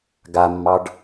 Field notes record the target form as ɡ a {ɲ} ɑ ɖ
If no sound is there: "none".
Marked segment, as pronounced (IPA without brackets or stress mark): mː